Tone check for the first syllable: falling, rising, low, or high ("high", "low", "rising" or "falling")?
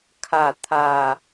falling